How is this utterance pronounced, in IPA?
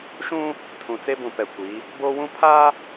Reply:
ʃ ũ˦ | tʰ ũ˨ t͡s e˦ b ũ˨ p ɛ˨ kʷ i˨˦ | b oː˦ w ũ˦ pʰ aː˦

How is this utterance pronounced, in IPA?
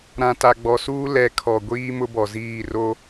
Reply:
ɾ ã˨ t a˨ ɡ͡b ɔ˨ s uː˦ l ɛ˨˦ kʰ ɔ˨ ɡʷ iː˦ m ʊ˦ b ɔ˨ z iː˦˨ r o˦

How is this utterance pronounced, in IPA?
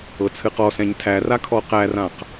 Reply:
ɤ t͡sʰ ɨ q ɔ s ɛ̃ ɲ tʰ æ r a kʰ ɔ q æ r ã q

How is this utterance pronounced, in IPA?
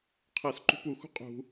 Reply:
qʰ ɤ s ǃ ṳ p u x ṳ qʼ ṳ

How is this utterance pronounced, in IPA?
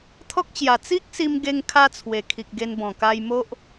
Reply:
t̪ʰ ɔ˦ k̚ t͡ɕ j a˨˩ t͡s i˦ k̚ s i˧ m ɡ e˧ ŋ kʰ a˧ t͡sʰ w e˨˩ kʰ i˨ k̚ ɡ e˧ n b ɔ̃˨˩ k a˧ j m o˦ ʔ

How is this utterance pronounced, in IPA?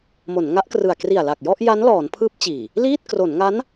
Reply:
m o˩˦ n ŋ a˦˥ ʔ k r ɯ˨˩ a̯ k r i˨˩ a̯ l a˨˩ k̚ j ɔ˥˩ ʔ j a˦˥ n l ɔː˩˦ n pʰ ɯː˦˥ p̚ t͡ɕ iː˨˩ | l iː˥˩ t̚ k r o˩˦ n ŋ a˦˥ n

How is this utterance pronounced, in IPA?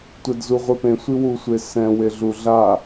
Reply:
tʷ ɛ d z u ʁʷ e p ẽ sʷ i w u sʷ e s ɛ̃ w e ɮ u ɮ a

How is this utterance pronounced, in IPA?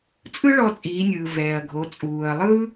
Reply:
t͡sʼ ɯ˥ ɭ ɔ˧ t͡sʼ iː˩˧ nʲ ɯː˩ v ɛː˩ ɐ̯ ɡʱ o˩˧ t͡sʼ uː˩ ɐ̯ lˠ ɯ˥

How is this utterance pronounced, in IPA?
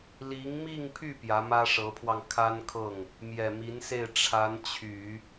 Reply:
l i˧˥ ŋ m i˥˧ ŋ pʰ y˥˩ p j ä˧˥ m ä˥ ʂ ɤ˧˥ pʰ w ɑ˧ ŋ kʰ a˥ n kʰ ɤ˥˩ ŋ | m j ɛ˨˩ m i˧˥ n s e˥˩ ɪ̯ ʈ͡ʂʰ a˧˥ n t͡ɕʰ y˨˩˦

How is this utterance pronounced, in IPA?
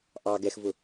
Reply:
ʔ ɑ ɡ ɛ x v ʊ

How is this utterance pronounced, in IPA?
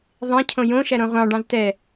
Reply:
ðˤ ẽ cʰ õ j õ ʃ æ ɾ õ ʁʷ ɑ̃ ɖ ɑ̃ z t ɛ

